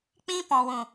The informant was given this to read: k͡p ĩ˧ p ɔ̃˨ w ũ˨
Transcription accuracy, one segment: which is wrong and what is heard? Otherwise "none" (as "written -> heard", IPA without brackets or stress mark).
none